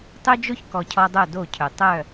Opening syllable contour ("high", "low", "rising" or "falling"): high